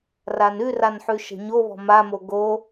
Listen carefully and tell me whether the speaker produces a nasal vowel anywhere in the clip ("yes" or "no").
no